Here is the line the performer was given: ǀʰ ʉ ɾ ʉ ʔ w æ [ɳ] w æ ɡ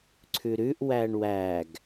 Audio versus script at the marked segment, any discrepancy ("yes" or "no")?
no